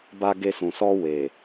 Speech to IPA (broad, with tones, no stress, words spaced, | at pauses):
ba˧ ɡe˧sũ˨sɔ˧ we˨